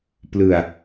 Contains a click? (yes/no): no